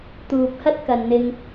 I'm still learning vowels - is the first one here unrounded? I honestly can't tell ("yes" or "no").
no